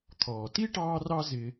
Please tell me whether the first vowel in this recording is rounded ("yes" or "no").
yes